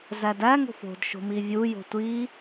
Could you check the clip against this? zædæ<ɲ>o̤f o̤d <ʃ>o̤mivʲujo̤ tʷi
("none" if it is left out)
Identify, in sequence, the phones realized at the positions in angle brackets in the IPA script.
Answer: ŋ, ʃ

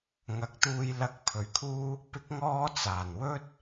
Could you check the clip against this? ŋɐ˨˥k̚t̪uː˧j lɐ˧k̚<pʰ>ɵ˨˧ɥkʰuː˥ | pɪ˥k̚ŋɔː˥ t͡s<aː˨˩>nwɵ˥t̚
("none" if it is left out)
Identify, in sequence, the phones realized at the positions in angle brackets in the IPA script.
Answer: pʰ, aː˨˩

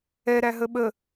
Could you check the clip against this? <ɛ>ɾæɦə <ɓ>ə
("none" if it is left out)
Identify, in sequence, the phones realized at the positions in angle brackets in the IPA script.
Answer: ɛ, ɓ

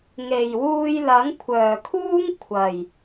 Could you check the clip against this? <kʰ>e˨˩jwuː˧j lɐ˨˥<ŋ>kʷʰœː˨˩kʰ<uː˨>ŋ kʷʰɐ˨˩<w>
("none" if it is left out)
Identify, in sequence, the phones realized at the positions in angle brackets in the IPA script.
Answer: ŋ, ŋ, uː˥, j

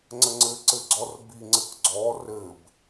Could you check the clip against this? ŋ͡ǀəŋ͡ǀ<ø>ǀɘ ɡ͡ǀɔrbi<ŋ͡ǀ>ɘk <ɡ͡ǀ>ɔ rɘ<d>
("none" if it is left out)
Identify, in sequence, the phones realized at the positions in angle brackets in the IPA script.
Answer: ɘ, ŋ͡ǀ, ɡ͡ǀ, b

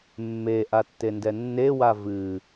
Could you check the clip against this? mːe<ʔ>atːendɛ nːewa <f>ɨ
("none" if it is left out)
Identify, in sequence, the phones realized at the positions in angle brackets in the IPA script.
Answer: ʔ, v

